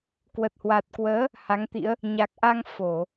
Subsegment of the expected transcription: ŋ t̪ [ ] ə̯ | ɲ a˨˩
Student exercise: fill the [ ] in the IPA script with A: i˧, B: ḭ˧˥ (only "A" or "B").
B